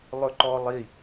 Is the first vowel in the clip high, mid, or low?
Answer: mid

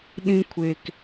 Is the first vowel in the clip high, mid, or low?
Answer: high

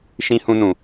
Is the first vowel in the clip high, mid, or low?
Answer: high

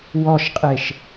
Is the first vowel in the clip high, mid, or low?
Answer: mid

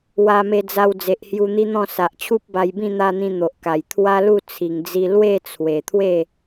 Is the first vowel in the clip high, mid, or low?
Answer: low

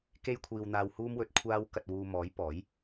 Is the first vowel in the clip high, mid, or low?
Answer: mid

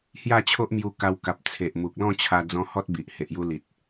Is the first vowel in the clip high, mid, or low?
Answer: low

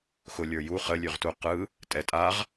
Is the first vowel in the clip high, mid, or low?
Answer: high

